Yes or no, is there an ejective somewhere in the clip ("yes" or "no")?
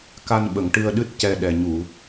no